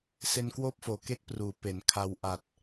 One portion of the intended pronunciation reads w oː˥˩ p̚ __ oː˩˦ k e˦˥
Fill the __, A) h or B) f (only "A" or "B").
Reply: B